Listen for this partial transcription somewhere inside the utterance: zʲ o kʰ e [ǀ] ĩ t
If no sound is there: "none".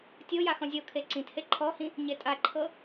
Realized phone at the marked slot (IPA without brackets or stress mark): ǀ